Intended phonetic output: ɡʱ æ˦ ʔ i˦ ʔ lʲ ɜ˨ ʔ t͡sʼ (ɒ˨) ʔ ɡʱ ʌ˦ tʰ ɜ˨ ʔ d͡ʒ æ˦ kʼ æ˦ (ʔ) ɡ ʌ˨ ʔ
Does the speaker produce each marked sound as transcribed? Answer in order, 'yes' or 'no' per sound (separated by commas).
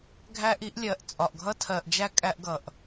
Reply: yes, yes